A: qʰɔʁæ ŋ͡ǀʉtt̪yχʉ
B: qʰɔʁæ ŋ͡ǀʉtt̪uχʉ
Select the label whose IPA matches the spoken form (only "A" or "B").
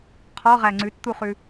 B